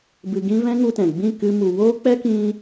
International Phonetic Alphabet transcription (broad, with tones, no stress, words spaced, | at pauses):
bɨ˧ɡĩ˦ vɛ̃˦ŋu˧tɛ̃˨ ɡ͡bĩ˦˨kɨ˧mu˨ woː˦k͡pɛ˦kĩ˧